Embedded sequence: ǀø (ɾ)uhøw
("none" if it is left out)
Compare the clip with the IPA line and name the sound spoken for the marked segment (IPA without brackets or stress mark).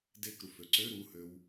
ɾ